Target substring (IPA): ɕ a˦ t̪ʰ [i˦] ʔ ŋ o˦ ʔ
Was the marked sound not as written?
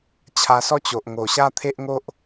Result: yes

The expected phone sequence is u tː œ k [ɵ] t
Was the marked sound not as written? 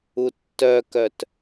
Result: yes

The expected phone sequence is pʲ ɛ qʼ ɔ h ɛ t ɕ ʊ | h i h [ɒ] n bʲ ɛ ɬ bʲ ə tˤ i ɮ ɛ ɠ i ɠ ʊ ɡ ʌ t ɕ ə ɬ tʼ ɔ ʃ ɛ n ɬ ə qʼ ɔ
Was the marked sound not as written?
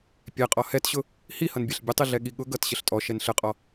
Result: yes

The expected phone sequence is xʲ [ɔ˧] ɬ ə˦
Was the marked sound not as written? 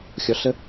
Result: no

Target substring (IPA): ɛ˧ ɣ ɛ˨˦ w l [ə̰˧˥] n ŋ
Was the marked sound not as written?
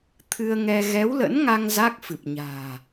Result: no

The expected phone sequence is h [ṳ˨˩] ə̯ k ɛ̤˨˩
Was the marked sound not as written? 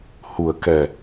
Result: no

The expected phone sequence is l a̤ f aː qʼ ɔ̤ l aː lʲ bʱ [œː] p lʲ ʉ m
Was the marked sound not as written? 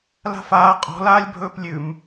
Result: yes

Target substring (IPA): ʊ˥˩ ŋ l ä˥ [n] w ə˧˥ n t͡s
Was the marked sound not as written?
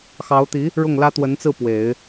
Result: yes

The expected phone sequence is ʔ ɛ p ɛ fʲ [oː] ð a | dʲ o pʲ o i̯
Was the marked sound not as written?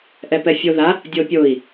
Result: yes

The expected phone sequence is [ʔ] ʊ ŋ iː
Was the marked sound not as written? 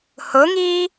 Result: yes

